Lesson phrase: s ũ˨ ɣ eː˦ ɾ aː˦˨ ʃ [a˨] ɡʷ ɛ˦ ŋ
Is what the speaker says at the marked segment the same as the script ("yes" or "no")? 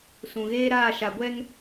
yes